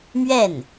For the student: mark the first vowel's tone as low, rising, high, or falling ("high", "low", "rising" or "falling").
falling